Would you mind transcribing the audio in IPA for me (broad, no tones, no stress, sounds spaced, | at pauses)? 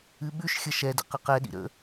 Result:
ɨ ɓ ʉ ʃ xʲ ə ʃ ɛ d ə̰ q ə q ɛ ɗ ḭ ɾ ə̰